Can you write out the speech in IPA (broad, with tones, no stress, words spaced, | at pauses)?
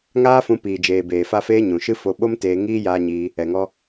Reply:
ŋaː˦fũ˧ piː˨d͡ʒeː˨ beː˨fa˧feː˧ ɲũ˨ʃɨ˦ fo˧ɓo˦mteː˧ ŋiː˦ jaː˧ɲiː˧ | ɛ˨ŋɔ˧